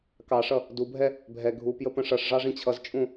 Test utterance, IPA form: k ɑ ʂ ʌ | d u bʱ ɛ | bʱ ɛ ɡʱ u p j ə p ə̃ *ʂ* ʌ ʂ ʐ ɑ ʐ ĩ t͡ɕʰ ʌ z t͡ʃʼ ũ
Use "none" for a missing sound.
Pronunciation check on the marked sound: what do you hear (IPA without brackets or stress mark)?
ʂ